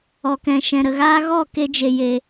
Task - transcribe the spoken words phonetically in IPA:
ɔ˨ k ɛ̃˨ ʃ ɛ̃˨ ɾ ə˨ ɣ aː˦ ɣ ɔ˦˨ k e˧ d͡ʒ e˨ j e˨

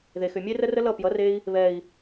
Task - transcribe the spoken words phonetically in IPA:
ð e˨ x ʏ˨ mʲ e˦ r ə˦ r ə˦ l ʌ˦˨ p j ʌ˨˦ r e˧ i̯ | β ɛ˨ i̯

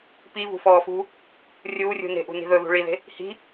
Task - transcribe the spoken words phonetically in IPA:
p i v ṳ f ɔː f ṳ | rʲ uː rʲ ṳ n e̤ ʔ ṳ n i̤ ð ɵ ð ṳ ɭ i ð e̤ | h i̤

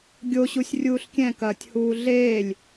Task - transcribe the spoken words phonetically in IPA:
ɡʲ o ɕ u sʲ rʲ uː ɬ kʲ ɛ̃ k ɐː tʲ h uː ɮ eː lʲ

